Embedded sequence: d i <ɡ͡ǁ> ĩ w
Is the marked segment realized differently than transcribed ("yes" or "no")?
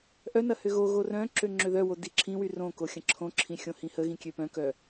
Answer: yes